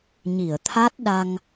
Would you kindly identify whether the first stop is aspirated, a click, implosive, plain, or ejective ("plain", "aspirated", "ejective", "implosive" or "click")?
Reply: aspirated